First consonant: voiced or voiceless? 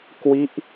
voiceless